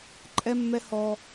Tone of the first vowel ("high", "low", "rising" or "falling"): high